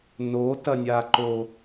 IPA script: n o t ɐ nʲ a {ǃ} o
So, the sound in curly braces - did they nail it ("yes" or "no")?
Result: yes